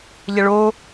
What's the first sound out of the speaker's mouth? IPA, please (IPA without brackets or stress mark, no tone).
ʎ